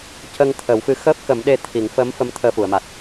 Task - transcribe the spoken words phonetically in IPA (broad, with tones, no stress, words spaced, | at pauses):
cə˧ŋ t̪ʰə˨˩˦wfɨ˧˥ xəː˦˥p̚kə˨˩˦mɗe˧ t̪ʰi˨˩˦ŋfəː˧˥m fə˧˥m t̪ʰəː˧fu˨˩˨ə̯ma˨˩t̚